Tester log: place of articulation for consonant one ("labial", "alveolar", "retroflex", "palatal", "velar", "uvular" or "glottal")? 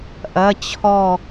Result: glottal